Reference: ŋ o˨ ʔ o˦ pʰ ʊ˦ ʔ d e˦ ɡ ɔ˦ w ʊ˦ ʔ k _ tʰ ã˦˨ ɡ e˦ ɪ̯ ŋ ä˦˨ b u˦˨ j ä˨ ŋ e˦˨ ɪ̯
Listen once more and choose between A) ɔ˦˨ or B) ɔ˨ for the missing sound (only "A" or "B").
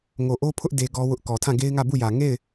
B